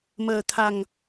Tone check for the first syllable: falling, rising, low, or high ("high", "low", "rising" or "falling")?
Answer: low